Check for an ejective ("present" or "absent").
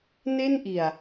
absent